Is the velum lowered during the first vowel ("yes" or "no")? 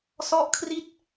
no